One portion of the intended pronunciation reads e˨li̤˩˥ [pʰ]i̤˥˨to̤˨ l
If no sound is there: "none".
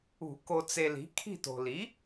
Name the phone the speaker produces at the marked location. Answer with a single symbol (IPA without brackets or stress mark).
kʰ